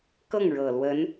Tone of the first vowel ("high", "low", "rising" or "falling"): falling